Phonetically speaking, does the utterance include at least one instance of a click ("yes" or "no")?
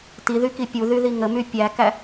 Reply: no